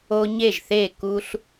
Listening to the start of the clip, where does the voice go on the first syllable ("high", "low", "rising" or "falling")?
high